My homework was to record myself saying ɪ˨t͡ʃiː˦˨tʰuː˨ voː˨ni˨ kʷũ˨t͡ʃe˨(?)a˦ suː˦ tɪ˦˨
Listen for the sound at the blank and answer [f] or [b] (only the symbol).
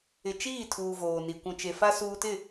f